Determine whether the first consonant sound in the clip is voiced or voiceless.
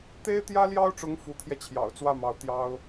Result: voiceless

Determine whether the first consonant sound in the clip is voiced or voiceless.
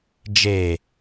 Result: voiced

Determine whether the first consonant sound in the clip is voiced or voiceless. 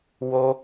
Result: voiced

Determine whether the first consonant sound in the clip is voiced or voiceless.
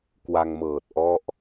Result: voiceless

